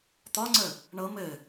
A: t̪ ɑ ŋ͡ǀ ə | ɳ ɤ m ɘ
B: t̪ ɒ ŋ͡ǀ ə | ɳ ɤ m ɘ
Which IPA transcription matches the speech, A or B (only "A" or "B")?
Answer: B